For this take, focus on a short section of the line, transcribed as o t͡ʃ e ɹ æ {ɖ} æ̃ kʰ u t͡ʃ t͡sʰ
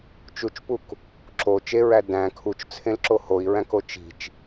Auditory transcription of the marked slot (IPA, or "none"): d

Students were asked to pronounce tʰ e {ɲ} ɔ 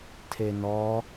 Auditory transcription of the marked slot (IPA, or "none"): n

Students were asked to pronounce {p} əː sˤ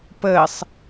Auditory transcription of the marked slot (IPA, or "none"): p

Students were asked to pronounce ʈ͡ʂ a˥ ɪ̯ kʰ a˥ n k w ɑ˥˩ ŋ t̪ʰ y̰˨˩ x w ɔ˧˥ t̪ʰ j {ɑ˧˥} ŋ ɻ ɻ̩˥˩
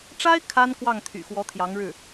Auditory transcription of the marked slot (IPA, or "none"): ɑ˧˥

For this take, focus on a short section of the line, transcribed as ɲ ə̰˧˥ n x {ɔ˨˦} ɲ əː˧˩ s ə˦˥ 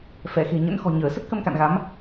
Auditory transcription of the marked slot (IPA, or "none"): ɔ̤˨˩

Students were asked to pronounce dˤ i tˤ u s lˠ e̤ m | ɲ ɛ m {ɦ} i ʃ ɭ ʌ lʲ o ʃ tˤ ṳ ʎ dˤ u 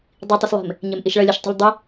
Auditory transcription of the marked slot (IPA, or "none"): ʔ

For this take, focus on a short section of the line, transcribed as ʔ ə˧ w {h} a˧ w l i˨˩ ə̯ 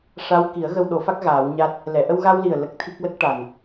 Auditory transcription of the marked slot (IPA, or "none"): ɣ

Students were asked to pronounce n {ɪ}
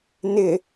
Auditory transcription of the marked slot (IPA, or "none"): ɪ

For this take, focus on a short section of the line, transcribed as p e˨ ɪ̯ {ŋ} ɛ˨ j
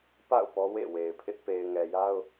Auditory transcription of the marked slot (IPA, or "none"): ŋ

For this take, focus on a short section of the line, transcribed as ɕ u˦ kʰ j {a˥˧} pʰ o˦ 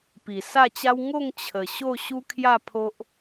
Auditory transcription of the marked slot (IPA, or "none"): a˥˧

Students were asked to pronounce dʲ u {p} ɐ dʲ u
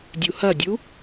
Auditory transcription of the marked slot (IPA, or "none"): h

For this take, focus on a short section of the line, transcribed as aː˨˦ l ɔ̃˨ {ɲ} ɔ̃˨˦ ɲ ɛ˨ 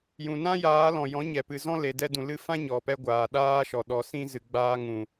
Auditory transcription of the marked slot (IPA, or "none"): j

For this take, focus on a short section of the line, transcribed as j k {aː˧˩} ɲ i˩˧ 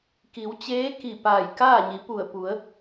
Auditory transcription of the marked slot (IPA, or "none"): aː˥˨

